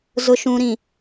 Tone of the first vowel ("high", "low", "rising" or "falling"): low